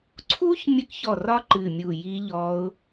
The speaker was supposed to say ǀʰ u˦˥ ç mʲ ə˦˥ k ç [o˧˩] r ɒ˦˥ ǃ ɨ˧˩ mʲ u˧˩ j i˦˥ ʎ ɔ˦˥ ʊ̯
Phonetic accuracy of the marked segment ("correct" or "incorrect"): incorrect